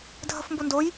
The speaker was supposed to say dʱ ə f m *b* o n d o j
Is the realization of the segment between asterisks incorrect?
no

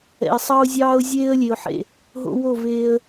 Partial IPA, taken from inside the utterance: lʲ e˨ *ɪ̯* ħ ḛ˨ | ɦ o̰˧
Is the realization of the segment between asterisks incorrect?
yes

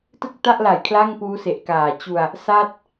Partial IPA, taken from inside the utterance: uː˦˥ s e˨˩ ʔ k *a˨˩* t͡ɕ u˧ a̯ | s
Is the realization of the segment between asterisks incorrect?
yes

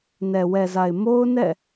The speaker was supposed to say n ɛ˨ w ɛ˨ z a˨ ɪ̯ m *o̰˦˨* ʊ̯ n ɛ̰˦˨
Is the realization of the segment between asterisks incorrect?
yes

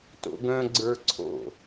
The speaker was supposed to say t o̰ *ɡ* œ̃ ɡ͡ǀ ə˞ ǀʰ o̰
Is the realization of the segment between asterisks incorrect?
no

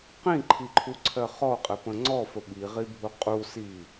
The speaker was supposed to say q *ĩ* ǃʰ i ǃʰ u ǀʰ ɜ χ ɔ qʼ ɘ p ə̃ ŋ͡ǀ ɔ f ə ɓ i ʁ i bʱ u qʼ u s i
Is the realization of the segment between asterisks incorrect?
no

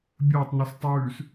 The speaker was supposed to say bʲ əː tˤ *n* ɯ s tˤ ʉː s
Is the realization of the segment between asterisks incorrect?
no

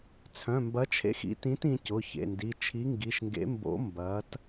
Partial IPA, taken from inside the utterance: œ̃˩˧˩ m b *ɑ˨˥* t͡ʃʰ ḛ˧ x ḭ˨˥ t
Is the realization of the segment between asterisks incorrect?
yes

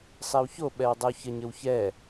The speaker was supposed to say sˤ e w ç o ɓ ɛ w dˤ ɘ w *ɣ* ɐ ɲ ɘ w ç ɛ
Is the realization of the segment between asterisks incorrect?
yes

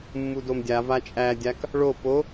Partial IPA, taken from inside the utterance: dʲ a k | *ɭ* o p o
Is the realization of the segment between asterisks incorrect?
no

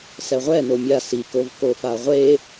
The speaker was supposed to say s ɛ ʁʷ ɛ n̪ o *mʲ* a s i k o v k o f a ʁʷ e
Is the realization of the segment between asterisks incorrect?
no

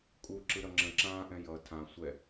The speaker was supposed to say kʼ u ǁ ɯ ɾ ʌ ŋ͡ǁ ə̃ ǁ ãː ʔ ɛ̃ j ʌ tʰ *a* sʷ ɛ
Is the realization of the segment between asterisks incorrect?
yes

